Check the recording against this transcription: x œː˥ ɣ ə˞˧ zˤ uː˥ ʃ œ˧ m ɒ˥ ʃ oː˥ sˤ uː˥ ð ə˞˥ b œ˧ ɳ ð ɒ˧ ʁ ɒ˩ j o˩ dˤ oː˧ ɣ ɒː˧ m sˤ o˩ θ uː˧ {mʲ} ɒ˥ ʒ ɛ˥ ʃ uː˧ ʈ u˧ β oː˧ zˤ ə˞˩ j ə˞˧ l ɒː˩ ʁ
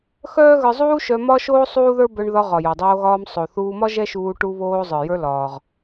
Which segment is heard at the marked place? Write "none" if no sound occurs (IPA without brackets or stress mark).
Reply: m